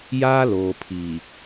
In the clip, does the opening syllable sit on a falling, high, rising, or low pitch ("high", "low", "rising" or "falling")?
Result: high